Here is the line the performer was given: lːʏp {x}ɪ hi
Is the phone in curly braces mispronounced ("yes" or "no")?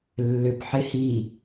yes